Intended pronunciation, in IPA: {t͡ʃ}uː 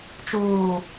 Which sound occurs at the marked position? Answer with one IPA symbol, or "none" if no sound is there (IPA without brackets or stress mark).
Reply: t͡ʃ